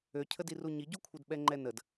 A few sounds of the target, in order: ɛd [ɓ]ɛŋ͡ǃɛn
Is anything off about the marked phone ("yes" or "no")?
no